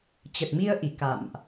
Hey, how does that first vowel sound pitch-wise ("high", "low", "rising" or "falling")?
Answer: low